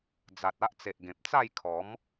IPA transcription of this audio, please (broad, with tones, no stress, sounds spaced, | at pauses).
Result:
d͡z a˨ t̚ a˦ ʔ t͡s e˨ ʔ ɡ ẽ˨ p̚ t͡s a˥˧ j kʰ ɔ˨˦ m